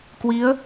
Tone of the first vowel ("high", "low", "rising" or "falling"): rising